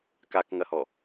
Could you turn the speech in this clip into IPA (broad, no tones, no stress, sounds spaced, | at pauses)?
k a k ŋ ɐ h ɔ